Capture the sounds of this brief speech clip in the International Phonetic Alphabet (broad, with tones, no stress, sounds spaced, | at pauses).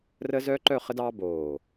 r ə˥ z œ˥ ǃ œ˥˧ χ ə˥ d ɑː˥ b oː˧˩